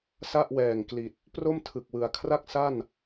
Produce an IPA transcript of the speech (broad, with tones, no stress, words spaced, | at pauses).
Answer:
sa˥˩ʔwɛː˨˩ŋkli˨˩t̚ | pro˥˩mtʰɯ˨˩k̚wɯ˨˩a̯kʰra˥˩k̚ sa˥˩n